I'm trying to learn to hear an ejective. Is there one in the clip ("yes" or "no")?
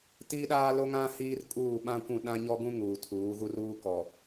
yes